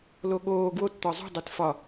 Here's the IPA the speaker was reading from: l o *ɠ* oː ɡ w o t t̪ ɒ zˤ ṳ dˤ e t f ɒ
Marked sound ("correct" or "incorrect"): correct